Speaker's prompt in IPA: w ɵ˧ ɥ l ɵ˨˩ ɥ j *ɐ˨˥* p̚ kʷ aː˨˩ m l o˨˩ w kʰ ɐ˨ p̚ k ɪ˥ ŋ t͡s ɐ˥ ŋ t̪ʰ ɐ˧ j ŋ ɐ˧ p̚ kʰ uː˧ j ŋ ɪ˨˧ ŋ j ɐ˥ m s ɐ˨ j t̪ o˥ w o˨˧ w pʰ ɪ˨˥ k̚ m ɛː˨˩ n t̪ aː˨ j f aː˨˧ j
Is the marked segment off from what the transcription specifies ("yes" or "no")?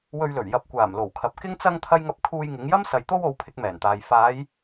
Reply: no